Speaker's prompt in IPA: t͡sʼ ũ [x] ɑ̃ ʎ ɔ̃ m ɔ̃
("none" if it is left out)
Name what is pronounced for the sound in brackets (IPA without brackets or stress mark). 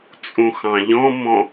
x